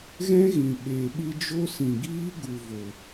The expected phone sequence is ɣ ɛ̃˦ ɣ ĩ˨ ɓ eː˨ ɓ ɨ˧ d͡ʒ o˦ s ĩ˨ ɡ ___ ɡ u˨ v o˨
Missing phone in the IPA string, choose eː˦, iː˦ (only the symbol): iː˦